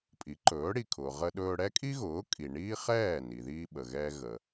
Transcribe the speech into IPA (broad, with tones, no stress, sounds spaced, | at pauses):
pʼ i˩˥ ǃ ɵː˩˥ ɽ i˩ kʰ ʊː˩ ʁ ə˧ ɗ ɵː˧ ɽ ɛ˥ kʼ i˥ ɣ ʊː˩˥ kʼ i˩ ɳ iː˥ χ ɛː˥˩ n i˩ ð iː˧ ɓ ə˩ ɣ ɛː˧ ɣ əː˩